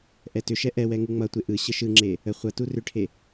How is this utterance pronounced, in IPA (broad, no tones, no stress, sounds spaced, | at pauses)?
ʔ ɛ t ʏ ʃ ɛ ʔ ɛ w ɛ ŋ u ŋ͡m ʌ tʷ e ʔ ɯ ɕ ə ʃ ɯ ŋ͡ǁ e | ə χʷ ʌ t u r ʏ ʈʰ e